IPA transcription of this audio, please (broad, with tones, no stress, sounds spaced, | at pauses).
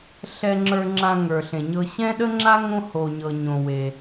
ɬ ɛ˧ ŋ͡ǁ ə˞˧ ŋ͡ǁ ã˧ ŋ ə˞˩ ɬ ẽ˩ ɲ ɤ˧ ɕ ɛ̃˥ ɗ ə˥ ŋ͡ǁ a˥ ŋ õ˥ h o˩ ɲ ɤ˩ ɲ õ˩ w e˩